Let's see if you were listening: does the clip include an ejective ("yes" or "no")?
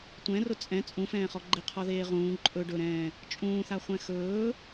yes